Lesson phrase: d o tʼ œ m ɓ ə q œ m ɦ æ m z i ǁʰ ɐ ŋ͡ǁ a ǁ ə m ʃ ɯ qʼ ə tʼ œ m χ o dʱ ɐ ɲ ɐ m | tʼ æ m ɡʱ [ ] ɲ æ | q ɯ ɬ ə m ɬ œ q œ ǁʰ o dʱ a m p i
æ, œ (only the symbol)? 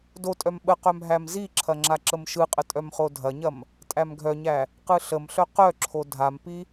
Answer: œ